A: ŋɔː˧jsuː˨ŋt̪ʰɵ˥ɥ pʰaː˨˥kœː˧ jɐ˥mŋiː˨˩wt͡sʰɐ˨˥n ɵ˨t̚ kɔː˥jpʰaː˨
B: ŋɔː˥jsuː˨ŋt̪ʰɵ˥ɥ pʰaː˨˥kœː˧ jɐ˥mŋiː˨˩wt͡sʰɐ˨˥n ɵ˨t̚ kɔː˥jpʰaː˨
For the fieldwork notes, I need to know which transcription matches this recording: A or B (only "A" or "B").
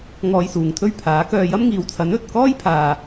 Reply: A